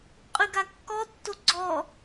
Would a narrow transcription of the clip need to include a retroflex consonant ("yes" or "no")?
no